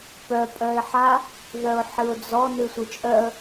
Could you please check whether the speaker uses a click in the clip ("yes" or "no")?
no